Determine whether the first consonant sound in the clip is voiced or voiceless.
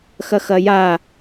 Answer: voiceless